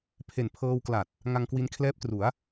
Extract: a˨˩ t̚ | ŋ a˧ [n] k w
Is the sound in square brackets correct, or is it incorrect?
incorrect